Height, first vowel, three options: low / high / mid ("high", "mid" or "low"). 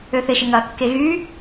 mid